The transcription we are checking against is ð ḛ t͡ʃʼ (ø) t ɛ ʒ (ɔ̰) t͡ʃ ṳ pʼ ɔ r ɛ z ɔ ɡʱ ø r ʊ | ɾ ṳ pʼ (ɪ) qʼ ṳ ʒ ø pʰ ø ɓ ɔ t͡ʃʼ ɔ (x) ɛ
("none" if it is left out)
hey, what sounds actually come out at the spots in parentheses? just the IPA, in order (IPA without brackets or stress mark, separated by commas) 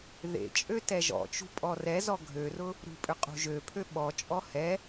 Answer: ø, ɔ̰, ʏ, h